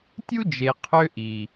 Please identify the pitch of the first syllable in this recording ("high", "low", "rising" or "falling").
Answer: high